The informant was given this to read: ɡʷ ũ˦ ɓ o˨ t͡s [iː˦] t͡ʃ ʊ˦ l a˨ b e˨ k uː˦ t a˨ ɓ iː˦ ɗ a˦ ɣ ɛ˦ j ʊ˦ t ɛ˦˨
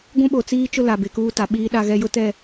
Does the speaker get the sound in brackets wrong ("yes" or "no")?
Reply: no